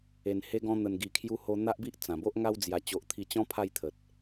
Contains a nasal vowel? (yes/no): yes